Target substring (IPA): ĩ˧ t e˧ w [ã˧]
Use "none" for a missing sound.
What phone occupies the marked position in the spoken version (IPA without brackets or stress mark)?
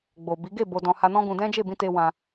ã˧